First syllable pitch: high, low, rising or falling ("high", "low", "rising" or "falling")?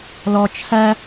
low